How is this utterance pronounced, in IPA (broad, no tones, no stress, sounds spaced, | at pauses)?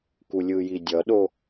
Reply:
k u lʲ ɯ j i dʲ ʌ ɗ o